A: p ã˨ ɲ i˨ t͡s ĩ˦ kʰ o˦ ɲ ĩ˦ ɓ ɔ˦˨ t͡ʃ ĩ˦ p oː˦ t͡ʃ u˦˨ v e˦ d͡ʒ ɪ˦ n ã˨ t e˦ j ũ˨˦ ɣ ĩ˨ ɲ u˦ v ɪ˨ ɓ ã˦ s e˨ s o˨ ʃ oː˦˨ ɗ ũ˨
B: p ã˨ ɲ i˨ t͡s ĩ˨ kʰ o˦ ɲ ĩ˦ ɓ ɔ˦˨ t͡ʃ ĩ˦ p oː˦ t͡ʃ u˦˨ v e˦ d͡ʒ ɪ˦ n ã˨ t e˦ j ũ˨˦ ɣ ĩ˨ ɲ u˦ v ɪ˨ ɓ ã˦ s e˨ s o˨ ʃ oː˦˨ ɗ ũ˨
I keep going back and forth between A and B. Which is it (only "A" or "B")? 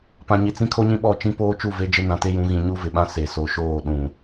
A